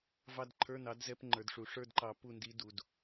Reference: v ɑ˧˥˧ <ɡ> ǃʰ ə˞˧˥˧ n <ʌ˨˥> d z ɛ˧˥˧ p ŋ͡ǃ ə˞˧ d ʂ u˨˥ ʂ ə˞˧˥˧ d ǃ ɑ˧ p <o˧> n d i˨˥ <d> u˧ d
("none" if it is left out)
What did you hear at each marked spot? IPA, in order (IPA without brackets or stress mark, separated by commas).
d, ɑ˨˥, u˧, d